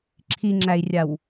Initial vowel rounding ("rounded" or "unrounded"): unrounded